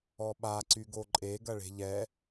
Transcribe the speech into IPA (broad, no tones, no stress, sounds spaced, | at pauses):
ɔ ɓ a ǀ y ɡ o ǃʼ e ɡ ɐ ɭ e̤ ʎ ɛ